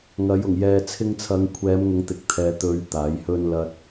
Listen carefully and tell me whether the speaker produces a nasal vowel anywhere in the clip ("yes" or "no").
no